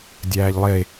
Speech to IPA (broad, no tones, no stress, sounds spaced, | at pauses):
dʲ æː ʎ lˠ e